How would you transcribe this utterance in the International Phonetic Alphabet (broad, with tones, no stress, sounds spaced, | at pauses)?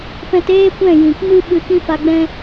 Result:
p ɛ̃˧ t eː˦ kʷ ɛ̃˦˨ j ĩ˨ k m ɨ˦ ɓ ɨ˧ k ĩ˦ f a˧ ɡ͡b ɛ̃˦